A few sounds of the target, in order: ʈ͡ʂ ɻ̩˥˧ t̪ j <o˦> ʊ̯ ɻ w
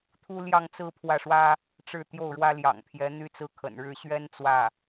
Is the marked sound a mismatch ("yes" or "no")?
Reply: yes